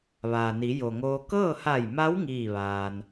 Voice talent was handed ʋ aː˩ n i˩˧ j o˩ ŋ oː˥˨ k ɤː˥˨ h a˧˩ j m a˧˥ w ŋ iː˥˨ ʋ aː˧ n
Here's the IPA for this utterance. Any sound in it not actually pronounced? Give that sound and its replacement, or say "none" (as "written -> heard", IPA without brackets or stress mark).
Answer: oː˥˨ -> oː˧